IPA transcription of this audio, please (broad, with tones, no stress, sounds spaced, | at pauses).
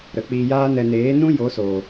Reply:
ɾ ə˨ k͡p iː˧ j aː˦ n ɛ˧ n eː˨˦ n ũ˦ j o˨˦ s o˨